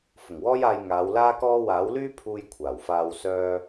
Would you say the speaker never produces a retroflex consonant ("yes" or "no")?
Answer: yes